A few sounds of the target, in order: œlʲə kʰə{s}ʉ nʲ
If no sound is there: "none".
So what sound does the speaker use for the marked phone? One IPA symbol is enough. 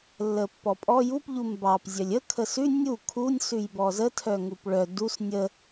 s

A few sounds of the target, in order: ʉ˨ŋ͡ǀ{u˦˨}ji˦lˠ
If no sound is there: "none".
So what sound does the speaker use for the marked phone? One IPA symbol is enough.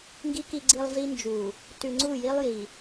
u˦˨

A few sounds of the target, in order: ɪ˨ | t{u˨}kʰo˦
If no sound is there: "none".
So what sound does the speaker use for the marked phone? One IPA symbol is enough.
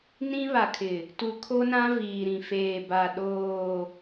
u˨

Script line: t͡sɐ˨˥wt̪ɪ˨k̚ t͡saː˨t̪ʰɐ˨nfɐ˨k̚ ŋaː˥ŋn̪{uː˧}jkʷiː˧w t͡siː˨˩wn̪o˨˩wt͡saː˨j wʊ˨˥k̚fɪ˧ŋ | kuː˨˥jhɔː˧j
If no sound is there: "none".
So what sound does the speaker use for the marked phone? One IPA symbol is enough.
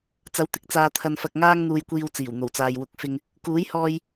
uː˧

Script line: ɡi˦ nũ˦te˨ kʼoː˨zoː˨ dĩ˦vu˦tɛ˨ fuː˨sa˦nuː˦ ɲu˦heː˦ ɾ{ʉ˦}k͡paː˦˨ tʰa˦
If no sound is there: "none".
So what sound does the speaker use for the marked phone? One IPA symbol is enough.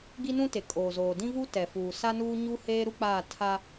u˦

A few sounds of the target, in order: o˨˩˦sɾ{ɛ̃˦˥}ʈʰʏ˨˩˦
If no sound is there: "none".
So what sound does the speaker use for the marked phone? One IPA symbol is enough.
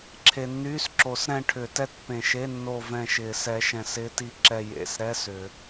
ɛ̃˦˨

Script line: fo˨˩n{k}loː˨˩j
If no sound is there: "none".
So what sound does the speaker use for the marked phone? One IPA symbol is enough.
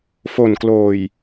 k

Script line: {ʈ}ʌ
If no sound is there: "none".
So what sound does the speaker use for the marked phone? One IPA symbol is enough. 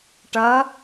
ʈ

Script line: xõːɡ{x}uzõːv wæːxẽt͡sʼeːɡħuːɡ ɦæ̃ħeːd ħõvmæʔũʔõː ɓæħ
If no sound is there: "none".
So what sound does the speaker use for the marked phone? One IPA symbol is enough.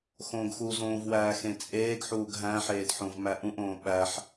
x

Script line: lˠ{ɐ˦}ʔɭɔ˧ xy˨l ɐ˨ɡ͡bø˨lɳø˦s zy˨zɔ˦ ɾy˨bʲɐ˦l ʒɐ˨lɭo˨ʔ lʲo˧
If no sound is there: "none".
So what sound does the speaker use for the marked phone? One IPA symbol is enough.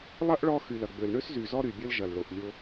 ɐ˦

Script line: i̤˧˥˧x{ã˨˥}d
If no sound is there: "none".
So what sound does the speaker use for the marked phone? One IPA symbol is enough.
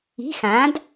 ã˨˥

